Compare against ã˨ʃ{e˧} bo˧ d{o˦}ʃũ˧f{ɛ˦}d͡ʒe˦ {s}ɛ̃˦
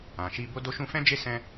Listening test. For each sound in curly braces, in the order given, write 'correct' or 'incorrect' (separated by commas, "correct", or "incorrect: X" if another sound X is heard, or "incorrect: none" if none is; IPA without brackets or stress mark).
incorrect: i˧, incorrect: o˧, incorrect: ɛ̃˦, correct